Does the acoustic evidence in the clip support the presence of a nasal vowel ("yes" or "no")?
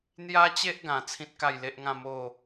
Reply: yes